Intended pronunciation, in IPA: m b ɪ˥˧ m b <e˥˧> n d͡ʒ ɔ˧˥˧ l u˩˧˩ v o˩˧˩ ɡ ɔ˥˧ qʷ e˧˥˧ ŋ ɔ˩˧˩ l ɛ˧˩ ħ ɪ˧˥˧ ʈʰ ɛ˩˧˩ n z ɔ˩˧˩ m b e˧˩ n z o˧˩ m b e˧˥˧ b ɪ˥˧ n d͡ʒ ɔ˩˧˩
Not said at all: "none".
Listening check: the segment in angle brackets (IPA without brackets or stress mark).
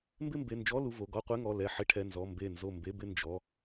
e˩˧˩